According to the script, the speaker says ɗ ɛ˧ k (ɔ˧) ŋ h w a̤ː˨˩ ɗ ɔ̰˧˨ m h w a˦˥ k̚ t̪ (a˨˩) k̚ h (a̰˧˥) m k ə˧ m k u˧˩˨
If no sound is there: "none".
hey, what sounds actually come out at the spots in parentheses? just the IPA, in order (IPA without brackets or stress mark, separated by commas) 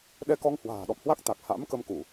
ɔ˧, a˨˩, a̰˧˥